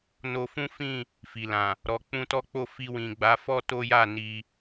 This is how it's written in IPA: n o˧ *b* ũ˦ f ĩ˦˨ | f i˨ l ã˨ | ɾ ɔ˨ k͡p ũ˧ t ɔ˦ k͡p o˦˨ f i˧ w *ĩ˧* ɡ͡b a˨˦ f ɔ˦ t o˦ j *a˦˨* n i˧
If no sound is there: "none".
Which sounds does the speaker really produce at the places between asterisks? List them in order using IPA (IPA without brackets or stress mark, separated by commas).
f, ĩ˨, a˦˨